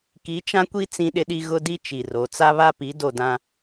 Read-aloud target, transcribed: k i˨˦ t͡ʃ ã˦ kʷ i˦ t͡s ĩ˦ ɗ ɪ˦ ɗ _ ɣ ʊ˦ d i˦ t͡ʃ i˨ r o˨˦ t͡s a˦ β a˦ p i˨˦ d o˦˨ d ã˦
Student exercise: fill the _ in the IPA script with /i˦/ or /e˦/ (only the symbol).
i˦